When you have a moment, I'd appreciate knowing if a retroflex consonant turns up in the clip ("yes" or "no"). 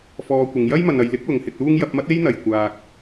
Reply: no